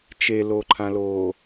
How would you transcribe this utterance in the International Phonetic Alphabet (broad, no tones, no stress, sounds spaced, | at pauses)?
t͡ʃ e l o ǃʰ ã l oː